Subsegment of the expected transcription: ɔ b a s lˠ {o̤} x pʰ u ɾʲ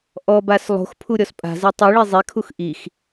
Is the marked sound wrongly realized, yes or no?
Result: no